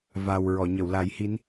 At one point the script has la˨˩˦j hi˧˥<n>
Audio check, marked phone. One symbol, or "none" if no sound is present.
n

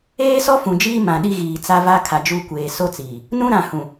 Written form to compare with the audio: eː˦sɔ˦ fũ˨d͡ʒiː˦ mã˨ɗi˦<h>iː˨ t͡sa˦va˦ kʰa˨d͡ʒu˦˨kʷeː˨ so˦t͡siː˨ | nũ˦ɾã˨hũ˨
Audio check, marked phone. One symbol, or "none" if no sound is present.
ɣ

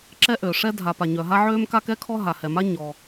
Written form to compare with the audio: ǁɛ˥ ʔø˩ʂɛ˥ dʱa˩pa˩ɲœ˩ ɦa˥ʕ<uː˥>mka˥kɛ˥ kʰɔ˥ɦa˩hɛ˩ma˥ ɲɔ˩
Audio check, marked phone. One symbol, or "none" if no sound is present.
øː˥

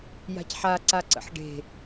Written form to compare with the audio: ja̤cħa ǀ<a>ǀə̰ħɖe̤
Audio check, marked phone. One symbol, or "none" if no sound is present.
a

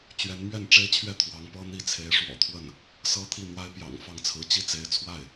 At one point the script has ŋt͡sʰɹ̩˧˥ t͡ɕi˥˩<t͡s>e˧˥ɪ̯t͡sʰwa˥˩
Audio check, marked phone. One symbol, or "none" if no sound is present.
t͡s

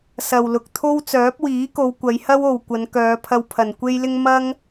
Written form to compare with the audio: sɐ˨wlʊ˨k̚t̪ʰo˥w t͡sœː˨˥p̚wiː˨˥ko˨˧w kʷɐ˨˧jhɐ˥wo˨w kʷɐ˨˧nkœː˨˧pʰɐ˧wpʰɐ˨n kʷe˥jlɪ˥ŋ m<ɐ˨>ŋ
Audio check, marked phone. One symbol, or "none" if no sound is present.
ɐ˥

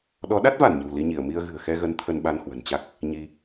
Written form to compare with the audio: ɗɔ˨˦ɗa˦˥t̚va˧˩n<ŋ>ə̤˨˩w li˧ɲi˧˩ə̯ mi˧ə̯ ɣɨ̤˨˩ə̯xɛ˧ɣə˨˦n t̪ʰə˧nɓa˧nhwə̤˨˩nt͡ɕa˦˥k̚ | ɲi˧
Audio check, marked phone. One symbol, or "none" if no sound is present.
ɲ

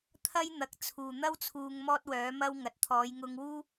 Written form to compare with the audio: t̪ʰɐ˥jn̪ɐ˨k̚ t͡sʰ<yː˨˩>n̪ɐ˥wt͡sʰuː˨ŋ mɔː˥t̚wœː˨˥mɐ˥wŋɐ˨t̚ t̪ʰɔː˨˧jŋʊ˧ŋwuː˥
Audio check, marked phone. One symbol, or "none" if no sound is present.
uː˨˩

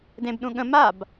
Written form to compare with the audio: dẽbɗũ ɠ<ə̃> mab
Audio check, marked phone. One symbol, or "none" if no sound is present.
ə̃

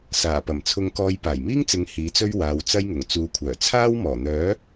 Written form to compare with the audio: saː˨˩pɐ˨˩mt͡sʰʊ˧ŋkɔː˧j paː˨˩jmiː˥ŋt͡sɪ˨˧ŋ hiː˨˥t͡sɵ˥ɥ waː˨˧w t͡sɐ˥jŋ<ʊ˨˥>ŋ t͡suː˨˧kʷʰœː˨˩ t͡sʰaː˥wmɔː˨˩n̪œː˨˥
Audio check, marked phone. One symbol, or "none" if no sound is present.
ʊ˨˩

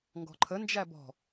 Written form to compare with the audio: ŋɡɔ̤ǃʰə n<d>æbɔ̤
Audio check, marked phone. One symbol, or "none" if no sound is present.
d͡ʒ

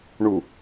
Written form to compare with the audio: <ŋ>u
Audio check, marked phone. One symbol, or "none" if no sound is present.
ɳ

